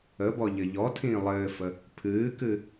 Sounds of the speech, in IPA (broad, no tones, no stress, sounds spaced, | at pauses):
ə b ɔ ʎ ɘ ʎ ɔ tʰ ĩː lˠ ɘː f ə | pʰ ɨː k ɨ